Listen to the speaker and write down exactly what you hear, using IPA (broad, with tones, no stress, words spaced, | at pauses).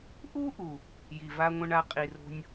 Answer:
ʔu˦ ʔu˨ | ji˨va˦ŋʷə̃˦ɳa˦ qʼi˨ro̤˦nʲ